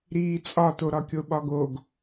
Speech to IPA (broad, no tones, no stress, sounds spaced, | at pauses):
ɾ iː t͡sʼ ɒ t o ɾ ɒ kʲ o ɓ ɒ ɡ o ɡ